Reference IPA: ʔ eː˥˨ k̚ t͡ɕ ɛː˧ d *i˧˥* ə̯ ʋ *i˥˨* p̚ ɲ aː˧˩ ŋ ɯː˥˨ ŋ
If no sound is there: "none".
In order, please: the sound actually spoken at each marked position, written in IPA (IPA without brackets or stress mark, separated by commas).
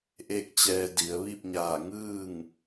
i˩˧, i˥˨